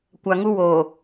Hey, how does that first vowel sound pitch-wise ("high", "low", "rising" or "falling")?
low